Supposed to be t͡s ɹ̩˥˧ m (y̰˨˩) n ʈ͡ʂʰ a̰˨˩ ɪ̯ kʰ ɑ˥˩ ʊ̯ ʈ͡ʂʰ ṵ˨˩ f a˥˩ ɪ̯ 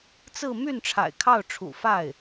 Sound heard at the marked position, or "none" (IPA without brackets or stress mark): y˥˩